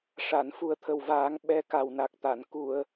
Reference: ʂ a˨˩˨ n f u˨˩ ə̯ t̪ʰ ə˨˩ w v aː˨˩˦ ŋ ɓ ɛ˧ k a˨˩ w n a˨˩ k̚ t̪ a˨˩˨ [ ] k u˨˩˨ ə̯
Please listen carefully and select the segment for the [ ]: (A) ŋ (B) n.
B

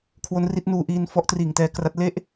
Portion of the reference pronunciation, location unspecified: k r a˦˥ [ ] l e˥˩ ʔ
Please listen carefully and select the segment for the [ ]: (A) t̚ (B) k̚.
A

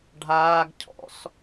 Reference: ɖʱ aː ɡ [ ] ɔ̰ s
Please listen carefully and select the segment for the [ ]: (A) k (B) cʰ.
B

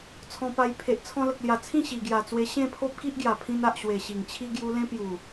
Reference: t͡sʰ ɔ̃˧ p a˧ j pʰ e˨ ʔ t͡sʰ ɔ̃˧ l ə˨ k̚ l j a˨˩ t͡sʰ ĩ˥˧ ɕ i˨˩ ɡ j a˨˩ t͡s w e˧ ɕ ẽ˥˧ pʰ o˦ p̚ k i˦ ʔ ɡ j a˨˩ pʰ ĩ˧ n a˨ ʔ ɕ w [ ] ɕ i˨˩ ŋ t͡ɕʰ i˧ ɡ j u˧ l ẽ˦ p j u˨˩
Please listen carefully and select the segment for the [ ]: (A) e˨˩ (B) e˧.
A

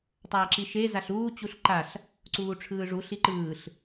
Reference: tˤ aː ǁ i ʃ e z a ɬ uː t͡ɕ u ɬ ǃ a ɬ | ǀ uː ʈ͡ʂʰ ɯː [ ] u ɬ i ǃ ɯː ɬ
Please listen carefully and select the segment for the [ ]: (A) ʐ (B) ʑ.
A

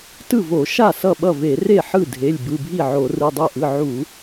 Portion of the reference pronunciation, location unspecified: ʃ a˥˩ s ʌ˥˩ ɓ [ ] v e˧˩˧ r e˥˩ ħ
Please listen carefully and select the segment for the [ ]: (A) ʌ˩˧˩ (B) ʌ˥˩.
B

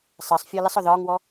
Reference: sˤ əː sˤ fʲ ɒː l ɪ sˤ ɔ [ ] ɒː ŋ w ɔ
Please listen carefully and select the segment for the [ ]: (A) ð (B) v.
A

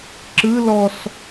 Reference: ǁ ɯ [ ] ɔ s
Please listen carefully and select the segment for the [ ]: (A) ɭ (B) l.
B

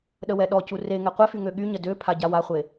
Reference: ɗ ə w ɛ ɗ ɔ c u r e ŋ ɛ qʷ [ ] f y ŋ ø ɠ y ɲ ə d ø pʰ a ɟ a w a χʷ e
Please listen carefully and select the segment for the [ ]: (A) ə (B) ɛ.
B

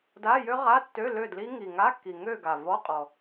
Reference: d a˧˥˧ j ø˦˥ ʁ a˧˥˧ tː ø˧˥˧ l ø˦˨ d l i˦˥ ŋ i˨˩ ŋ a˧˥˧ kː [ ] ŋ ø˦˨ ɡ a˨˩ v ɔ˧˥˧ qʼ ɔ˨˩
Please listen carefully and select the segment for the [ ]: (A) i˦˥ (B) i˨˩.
B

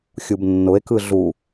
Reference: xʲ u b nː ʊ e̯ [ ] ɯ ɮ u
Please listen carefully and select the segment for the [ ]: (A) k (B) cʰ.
A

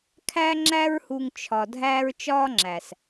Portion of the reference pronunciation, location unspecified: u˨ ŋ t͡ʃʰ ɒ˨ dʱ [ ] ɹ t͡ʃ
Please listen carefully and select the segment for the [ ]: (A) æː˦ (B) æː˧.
B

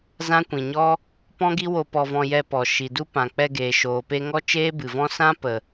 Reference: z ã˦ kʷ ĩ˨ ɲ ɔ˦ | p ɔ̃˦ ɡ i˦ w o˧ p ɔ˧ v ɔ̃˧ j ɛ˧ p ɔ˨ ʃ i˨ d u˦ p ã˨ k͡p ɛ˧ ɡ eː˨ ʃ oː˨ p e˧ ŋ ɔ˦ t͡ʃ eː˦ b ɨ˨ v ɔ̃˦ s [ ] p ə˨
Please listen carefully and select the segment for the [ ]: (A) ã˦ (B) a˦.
A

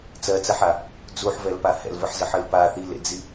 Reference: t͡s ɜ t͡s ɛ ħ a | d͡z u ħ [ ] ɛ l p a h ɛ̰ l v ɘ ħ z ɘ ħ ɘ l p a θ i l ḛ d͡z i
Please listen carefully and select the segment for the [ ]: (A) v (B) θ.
A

